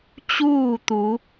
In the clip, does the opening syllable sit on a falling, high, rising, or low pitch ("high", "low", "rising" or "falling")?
falling